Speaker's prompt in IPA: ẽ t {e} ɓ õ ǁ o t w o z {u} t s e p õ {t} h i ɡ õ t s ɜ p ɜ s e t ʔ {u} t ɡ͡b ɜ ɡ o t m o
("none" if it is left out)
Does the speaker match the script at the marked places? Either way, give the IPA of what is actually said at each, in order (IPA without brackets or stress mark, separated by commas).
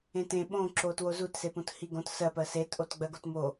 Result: ẽ, u, t, o